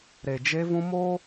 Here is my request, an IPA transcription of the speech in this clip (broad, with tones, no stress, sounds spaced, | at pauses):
ɾ e˨ d͡ʒ e˦ v ũ˦ m o˦